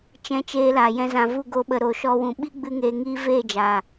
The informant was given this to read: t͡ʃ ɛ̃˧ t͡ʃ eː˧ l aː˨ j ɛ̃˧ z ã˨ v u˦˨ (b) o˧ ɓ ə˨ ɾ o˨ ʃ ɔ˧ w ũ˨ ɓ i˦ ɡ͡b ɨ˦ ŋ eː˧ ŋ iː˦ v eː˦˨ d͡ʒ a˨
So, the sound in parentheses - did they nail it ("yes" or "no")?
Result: no